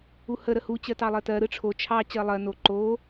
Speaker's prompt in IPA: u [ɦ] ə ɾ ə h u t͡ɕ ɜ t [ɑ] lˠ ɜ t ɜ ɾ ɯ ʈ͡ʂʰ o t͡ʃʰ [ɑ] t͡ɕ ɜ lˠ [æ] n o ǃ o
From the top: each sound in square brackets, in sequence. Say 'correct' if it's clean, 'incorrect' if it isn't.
incorrect: h, correct, correct, incorrect: ɜ

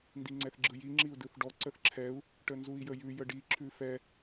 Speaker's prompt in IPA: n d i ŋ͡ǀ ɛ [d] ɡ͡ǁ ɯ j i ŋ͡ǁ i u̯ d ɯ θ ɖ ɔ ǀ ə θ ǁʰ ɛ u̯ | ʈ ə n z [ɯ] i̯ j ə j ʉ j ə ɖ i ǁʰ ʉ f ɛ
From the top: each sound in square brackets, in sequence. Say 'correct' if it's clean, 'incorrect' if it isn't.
incorrect: θ, incorrect: u

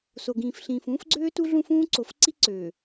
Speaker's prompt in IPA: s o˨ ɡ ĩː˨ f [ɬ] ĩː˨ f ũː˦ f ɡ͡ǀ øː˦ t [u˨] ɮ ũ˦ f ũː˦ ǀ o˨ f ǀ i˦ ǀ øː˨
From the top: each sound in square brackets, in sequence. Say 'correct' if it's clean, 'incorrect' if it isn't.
correct, incorrect: u˦

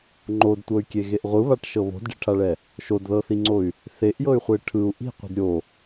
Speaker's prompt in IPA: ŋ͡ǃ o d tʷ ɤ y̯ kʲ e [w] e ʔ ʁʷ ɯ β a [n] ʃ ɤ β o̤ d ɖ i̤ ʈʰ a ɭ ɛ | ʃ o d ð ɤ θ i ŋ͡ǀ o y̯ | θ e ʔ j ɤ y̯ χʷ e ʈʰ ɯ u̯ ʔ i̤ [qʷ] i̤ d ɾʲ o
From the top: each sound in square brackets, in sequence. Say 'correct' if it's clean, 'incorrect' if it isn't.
incorrect: ɣ, incorrect: ʈ, correct

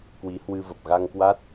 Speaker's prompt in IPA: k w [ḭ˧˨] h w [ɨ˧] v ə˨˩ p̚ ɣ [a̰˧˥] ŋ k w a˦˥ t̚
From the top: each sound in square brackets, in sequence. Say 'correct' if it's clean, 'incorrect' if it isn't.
incorrect: i˨˦, correct, incorrect: a˧

